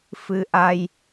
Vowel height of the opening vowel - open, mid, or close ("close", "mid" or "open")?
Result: close